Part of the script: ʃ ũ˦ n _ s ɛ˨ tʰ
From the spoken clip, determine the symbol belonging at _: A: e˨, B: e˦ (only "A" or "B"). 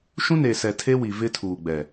A